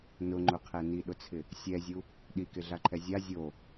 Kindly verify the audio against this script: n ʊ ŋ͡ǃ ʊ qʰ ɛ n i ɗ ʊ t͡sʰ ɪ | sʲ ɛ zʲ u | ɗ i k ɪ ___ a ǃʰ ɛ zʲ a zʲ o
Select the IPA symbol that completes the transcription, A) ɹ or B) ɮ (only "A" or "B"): B